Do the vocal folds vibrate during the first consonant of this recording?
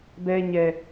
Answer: yes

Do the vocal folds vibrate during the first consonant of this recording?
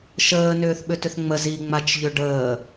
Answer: no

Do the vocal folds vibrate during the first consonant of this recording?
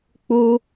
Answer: no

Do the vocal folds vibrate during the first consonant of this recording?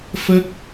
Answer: no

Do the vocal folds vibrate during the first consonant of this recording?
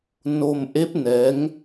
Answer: yes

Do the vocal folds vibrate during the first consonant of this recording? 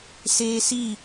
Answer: no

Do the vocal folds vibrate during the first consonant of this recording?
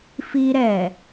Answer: no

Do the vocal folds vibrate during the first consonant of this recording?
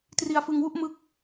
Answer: no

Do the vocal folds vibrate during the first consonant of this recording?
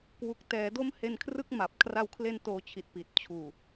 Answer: no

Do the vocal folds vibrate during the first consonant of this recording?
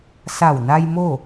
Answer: no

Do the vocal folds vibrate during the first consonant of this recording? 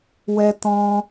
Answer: yes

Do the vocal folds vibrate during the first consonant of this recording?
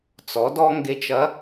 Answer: no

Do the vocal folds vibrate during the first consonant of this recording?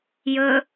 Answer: yes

